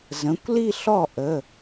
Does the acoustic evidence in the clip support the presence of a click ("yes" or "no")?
no